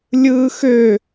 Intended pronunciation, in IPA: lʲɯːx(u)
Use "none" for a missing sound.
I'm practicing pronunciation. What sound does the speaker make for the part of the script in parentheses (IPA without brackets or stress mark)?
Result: ø